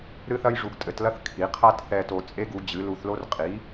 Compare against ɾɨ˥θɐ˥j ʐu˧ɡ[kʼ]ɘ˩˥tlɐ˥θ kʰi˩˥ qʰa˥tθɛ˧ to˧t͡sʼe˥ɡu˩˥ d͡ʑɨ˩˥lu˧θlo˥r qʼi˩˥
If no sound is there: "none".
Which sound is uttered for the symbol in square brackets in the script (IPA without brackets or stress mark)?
tʼ